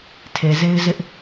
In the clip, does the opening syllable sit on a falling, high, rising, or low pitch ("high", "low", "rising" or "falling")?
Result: low